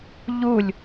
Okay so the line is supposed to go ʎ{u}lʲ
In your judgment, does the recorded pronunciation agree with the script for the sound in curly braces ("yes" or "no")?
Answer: yes